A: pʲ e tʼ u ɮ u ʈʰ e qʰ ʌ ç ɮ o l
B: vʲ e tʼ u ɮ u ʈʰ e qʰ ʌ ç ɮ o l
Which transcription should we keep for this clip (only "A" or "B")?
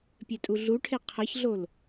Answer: A